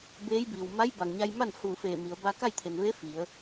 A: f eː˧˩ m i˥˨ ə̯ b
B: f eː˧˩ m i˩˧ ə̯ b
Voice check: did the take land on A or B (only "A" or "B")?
B